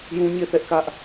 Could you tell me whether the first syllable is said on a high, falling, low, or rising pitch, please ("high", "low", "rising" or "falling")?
high